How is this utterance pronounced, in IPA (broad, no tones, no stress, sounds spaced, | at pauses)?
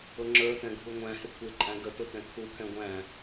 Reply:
ʊ ŋ͡ǁ ə˞ t ɛ̃ ɡʱ u ŋʷ æ̃ h ɪ kʷ ɪ ǃʼ æ̃ ɡ ə t ʊ t ɛ̃ kʰ u kʰ ɛ̃ ɡʷ æ̃